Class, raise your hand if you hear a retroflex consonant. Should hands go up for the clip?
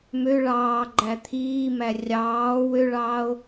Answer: yes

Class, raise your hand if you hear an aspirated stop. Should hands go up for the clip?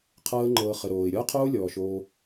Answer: yes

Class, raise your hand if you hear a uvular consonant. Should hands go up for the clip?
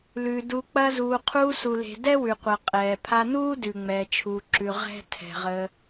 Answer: yes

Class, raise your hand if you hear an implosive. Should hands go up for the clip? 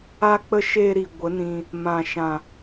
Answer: no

